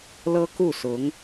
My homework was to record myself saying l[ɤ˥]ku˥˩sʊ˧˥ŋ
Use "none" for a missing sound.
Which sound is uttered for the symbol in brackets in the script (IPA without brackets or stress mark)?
ɤ˥